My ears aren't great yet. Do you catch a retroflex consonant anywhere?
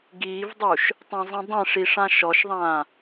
yes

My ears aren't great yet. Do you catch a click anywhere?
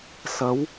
no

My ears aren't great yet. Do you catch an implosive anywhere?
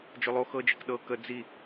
yes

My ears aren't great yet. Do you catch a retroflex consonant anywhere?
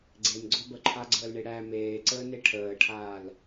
yes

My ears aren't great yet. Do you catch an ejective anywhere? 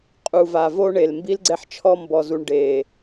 yes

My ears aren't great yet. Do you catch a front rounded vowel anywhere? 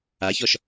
no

